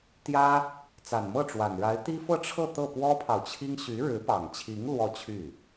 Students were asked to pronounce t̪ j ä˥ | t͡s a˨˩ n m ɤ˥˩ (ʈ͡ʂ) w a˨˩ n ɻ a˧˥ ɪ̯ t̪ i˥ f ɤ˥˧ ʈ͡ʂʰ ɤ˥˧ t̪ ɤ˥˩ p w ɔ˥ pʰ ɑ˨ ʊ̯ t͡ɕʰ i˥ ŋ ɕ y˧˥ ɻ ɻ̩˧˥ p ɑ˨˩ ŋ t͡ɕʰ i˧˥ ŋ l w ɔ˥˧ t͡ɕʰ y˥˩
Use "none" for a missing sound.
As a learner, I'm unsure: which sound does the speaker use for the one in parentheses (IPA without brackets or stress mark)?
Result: ʈ͡ʂ